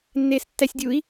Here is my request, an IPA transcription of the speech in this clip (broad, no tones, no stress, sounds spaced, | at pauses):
nː eː s tː æ sʲ dʲ u i̯